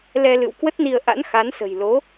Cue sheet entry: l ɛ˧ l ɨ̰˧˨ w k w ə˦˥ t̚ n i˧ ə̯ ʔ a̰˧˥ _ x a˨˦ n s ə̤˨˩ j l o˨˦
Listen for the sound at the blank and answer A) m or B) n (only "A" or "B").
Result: B